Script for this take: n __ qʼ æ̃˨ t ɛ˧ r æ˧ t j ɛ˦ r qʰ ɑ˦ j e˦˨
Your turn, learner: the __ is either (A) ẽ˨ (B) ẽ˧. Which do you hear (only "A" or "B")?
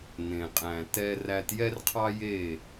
A